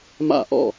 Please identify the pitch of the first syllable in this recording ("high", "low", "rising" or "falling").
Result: falling